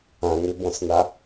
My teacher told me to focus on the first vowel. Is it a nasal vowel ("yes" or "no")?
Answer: yes